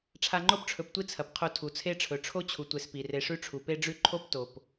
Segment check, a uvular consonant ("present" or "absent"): present